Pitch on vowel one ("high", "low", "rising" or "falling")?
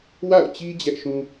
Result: falling